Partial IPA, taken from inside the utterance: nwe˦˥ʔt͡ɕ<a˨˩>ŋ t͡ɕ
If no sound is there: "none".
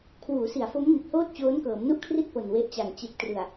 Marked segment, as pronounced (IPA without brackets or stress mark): a˨˩